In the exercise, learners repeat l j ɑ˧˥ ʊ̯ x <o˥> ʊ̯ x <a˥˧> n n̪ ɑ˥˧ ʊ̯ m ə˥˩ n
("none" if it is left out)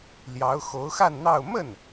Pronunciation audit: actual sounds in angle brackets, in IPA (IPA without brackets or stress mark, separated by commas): o˧˥, a˥˧